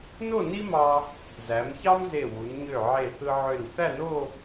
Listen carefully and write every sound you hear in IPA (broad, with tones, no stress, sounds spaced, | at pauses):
n o˥˧ n i˥ m ɑ˧ | z æ˩˧ m ç ɑ˥ m z e˧˩ w u˩˧ n ɲ ø˧˩ ʕ e˧˩ θ ɯ˧ ʕ ø˧˩ n θ æ˥˧ n o˥˧